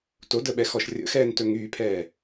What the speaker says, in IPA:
t o d ə ɓ ɛ x ɔ ʃ rʲ ə̰ x ɛː n t ɵ ŋ yː pʰ ɛː

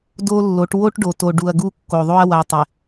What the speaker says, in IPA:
d o˦ lː o˨˦ ʈ w o˦ ʈ ɖ o˨ t o˨ ɖ u˨ ɐ̯ ɡ u˦ kː o˨ ðˤ o˦ ɐ̯ w a˨ tˤ ɪ˨

